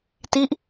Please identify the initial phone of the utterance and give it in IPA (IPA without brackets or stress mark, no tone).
t